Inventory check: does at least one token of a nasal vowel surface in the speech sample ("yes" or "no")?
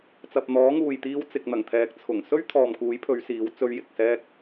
no